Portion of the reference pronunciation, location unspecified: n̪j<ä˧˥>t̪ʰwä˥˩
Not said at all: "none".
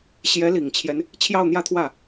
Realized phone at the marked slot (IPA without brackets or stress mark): ä˥˧